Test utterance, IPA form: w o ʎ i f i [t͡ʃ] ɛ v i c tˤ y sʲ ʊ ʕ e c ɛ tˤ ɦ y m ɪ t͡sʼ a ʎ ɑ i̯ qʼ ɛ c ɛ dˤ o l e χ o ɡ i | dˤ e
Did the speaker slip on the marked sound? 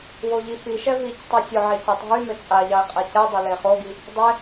yes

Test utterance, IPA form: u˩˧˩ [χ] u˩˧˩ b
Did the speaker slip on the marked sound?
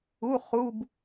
no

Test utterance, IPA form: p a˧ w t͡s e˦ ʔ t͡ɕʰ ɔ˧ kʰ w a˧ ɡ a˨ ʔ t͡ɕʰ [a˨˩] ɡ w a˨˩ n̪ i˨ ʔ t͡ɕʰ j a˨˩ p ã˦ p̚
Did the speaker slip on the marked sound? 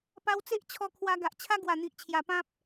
yes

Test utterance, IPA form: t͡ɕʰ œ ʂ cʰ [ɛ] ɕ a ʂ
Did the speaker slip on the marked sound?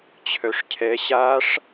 no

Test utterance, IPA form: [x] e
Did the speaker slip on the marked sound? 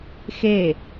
no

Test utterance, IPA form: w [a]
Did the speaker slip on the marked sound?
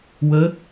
yes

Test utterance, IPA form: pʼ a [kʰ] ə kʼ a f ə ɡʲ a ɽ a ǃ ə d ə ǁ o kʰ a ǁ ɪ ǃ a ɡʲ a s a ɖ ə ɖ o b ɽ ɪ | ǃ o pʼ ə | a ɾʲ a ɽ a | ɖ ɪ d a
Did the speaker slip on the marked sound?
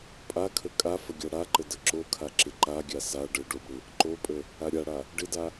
no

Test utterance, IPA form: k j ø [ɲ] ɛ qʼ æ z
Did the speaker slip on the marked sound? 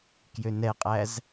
yes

